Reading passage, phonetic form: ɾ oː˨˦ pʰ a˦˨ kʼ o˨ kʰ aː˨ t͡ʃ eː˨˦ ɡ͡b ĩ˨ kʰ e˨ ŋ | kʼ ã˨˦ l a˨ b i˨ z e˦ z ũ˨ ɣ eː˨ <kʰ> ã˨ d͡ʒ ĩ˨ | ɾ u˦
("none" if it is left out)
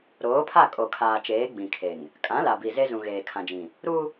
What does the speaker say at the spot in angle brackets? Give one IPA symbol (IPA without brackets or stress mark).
kʰ